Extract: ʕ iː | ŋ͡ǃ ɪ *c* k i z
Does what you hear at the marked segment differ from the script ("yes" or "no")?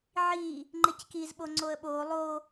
no